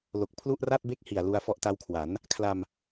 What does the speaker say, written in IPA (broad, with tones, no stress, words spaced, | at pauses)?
lo˨˩k̚ pʰlu˥˩ʔra˥˩t̚be˥˩k̚ hi˨˩a̯lu˧a̯ fɔ˦˥ʔta˦˥wkʰwa˩˦n | kʰla˧m